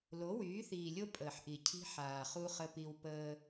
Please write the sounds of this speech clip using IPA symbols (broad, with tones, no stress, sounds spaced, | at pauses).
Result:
l o˨˦ w yː˨˦ θ iː˨ lʲ o˦ pʼ əː˨ ħ ʔ i˨ cʰ i̤˦ ħ aː˨ χ u˦ χ ə˦ p i˦ w p əː˦